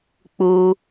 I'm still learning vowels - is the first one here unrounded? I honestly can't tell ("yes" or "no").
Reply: no